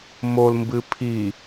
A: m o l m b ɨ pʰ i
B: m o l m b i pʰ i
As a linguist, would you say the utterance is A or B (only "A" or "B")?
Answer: A